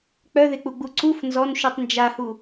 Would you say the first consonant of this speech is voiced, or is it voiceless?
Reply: voiceless